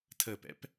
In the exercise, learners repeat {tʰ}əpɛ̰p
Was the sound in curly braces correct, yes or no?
yes